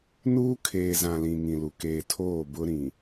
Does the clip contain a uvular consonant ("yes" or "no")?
no